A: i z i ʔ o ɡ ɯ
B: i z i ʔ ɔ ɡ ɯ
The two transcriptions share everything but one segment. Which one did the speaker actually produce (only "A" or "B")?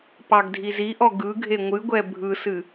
B